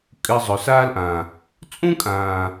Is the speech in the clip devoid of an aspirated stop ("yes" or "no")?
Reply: yes